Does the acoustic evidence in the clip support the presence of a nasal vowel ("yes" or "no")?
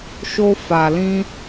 yes